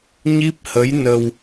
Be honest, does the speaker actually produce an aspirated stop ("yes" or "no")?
no